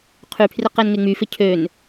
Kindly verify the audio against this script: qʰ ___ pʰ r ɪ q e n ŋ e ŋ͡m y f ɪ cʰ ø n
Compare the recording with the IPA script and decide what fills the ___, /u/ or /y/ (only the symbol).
y